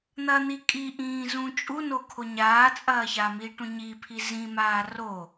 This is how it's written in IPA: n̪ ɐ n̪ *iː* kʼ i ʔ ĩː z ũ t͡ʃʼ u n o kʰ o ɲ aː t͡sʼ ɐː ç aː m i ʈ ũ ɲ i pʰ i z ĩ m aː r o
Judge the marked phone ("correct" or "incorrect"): incorrect